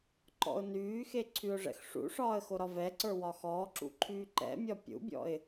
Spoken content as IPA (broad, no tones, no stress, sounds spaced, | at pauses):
ǃ ɔ̰ ʊ̯ n yː x e ǀʰ y ʊ̯ ʐ ɛ̰ x ʂ ṵ ʂ ɒː ə̯ x o ɾ ɒ v ɛ ǀ ə˞ w ɒ x ɔː ǁ ṵ ǃʰ yː ǃ ɛ̰ mʲ ɒ pʲ ṵ bʲ ɔ̰ ɪ̯